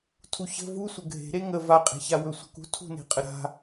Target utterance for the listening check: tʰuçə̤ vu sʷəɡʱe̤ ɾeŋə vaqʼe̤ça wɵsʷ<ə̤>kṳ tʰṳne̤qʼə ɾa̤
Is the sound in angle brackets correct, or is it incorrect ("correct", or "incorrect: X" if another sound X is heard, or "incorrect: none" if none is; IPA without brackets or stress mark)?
correct